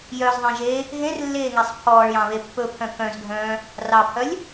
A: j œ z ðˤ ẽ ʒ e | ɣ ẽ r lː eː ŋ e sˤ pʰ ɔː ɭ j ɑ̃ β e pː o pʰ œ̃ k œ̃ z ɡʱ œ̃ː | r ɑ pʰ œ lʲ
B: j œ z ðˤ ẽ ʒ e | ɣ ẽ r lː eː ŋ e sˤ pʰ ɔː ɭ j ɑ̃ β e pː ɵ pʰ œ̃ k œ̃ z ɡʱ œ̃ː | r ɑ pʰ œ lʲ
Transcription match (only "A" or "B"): B